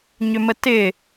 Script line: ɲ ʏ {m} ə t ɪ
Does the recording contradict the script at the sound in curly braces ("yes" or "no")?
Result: no